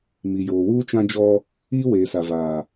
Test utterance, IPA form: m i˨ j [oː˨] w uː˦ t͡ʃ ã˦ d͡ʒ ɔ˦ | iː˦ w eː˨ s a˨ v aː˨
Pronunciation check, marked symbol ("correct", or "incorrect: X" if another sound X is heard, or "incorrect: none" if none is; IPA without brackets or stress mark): correct